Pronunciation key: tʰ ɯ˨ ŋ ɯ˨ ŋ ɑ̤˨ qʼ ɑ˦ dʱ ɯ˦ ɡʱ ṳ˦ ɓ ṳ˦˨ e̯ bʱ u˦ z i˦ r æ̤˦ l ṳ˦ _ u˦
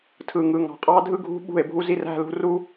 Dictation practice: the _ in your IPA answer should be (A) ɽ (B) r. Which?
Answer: B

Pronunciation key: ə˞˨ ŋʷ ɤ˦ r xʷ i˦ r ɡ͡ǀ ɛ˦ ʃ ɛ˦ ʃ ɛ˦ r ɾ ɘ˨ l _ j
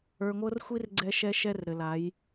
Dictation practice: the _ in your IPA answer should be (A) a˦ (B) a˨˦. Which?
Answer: B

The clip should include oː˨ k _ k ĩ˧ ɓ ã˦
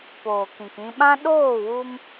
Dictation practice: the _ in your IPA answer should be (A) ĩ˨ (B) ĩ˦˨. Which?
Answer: A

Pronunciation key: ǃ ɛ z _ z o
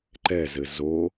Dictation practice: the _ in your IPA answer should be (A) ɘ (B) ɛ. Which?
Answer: A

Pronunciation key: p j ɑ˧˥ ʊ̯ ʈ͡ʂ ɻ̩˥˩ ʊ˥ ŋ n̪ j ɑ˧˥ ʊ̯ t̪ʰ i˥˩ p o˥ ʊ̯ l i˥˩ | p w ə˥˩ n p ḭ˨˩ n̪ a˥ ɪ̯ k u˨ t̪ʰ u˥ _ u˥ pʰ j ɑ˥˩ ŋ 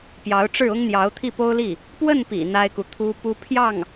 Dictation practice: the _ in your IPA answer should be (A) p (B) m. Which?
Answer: A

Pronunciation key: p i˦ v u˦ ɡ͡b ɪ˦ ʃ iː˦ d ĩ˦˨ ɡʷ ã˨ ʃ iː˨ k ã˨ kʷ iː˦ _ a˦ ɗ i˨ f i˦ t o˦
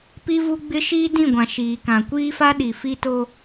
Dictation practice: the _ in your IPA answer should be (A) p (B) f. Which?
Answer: B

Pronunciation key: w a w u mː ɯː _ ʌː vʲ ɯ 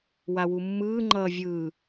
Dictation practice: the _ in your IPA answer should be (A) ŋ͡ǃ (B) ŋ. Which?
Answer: A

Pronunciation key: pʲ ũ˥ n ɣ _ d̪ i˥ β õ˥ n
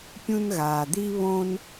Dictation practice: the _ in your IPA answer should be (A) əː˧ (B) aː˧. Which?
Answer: B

